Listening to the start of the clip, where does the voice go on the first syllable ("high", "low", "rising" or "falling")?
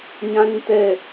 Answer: high